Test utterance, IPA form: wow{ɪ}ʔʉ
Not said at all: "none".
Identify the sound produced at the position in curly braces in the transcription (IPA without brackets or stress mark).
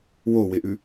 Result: ɪ